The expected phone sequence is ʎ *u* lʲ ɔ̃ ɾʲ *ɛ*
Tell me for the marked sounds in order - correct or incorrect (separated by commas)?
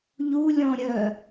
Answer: correct, incorrect